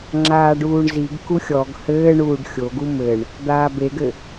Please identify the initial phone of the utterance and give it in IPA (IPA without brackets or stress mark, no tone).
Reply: ŋ͡ǁ